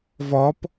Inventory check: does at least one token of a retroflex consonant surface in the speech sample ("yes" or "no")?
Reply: no